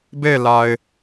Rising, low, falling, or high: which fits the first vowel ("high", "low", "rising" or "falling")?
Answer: falling